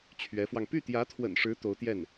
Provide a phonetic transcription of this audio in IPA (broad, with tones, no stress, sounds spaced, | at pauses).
t͡ɕʰ ɥ ɛ˧˥ f w ɑ˧ ŋ p y˥˩ t̪ j ä˧˥ t̪ʰ w ə̰˨˩ n ʂ ɻ̩˧˥ t̪ o˧˥ ʊ̯ t̪ j ɛ˥˩ n